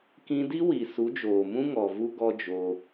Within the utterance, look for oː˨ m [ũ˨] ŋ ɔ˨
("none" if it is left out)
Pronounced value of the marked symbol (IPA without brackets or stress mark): ũ˦